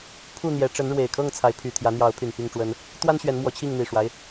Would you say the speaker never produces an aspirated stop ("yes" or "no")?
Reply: no